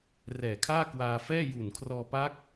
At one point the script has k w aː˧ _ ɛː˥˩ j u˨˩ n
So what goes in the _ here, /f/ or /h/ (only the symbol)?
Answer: f